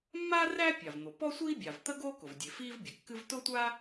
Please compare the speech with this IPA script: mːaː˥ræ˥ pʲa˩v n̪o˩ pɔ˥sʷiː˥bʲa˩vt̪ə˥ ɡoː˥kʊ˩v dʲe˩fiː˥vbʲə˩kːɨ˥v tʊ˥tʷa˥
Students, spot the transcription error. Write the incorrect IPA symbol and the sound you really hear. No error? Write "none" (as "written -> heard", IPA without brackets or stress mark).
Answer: none